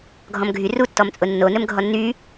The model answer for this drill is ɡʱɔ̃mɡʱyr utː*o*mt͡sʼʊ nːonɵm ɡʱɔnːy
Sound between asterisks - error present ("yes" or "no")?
yes